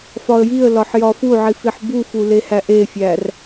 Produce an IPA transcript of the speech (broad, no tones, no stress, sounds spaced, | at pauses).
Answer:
f ɒ ə̯ j i ə̯ l ɒ ħ j ɒ f u ʕ i f i ħ b u f u l e h æ ʔ e fʲ æ r